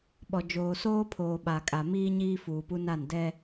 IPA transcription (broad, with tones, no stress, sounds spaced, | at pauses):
ɓ ɔ˨ d͡ʒ oː˨ s oː˦ pʰ oː˨ ɓ a˨ kʼ a˨ m iː˦ ɲ iː˦ f uː˨ p u˦ n a˦˨ n d ɛ˦